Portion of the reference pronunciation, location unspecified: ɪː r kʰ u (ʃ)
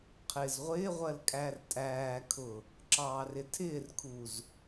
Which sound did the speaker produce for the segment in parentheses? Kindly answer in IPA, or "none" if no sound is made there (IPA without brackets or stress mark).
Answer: z